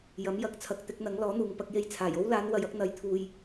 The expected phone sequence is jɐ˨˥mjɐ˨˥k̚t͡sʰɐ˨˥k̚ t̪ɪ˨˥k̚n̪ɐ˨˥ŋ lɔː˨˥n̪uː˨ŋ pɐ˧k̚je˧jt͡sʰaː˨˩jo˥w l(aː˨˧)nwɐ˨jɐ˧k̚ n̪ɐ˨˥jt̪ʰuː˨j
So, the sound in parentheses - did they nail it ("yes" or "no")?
yes